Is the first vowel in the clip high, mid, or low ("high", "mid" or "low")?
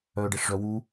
mid